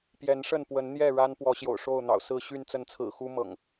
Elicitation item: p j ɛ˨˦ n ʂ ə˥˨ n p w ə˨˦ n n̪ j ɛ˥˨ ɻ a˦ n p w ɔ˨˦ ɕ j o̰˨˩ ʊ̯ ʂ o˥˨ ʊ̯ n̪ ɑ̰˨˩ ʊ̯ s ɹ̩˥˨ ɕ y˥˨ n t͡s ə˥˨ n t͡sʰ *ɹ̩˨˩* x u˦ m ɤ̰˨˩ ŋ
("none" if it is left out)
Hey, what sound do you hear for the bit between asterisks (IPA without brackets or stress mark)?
ɹ̩˨˩